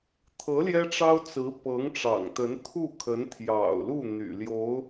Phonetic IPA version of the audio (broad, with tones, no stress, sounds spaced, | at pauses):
t̪ʰ ɤ˧˥ l j ɛ˥ ʈ͡ʂ ɑ˥ ʊ̯ t͡s ɹ̩˧˥ p ɤ˧˥ ŋ ʈ͡ʂ ɑ̰˨˩ ŋ t̪ ə˧˥ n t̪ʰ u˥˩ kʰ ə˧˥ n t̪ʰ j ɑ̰˨˩ ʊ̯ l u˥˩ n̪ y̰˨˩ l j o˧˥ ʊ̯